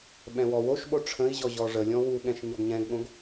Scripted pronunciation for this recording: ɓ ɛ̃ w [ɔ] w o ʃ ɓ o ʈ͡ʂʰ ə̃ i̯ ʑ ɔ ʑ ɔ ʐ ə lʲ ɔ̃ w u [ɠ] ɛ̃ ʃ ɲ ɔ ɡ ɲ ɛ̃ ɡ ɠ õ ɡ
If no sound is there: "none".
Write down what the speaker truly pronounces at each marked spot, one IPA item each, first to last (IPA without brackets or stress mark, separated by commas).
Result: ɔ, ɠ